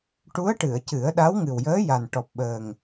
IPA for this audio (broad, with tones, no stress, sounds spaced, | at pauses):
ʈ u˧˥ ə̯ ʈ ɨ˨˩˨ ə̯ c ɨ˨˩˦ ə̯ ɗ a˧˥ w ŋ ɨ˨˩ w j əː˧˥ j a˨˩ n ʈ ɔ˨˩ p̚ ɓ əː˨˩ ŋ